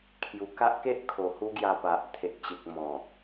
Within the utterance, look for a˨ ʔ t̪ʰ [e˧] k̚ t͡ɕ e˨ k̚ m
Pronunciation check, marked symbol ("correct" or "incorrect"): incorrect